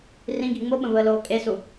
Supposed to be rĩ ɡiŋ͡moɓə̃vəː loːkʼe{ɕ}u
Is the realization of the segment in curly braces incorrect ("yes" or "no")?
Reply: yes